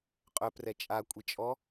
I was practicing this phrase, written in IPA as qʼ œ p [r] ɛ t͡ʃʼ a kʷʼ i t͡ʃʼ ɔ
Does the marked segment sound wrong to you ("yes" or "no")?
no